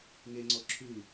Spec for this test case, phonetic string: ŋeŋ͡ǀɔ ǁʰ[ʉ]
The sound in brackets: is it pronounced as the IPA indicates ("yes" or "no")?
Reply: yes